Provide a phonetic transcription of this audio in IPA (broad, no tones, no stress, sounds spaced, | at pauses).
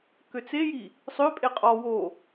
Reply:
k ø t͡s e j i | sˤ ø pʼ e qʼ ɔ w o